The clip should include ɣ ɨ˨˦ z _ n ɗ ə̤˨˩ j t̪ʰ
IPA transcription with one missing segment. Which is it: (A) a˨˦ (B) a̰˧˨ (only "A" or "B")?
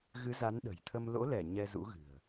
A